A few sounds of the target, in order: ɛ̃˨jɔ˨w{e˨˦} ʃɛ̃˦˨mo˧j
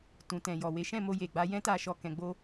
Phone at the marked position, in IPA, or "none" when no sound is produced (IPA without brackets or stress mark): e˨˦